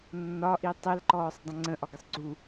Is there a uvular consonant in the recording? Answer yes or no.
no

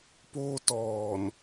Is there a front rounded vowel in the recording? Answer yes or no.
no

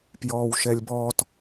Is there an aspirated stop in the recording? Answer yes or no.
no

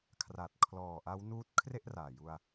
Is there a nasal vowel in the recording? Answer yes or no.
no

